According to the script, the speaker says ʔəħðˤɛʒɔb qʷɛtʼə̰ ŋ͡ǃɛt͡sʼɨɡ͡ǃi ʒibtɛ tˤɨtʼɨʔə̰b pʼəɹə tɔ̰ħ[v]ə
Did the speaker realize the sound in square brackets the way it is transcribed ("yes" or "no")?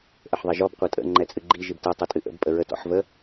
yes